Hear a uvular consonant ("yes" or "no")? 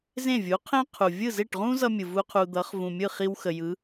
yes